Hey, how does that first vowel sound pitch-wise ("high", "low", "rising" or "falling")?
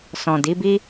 low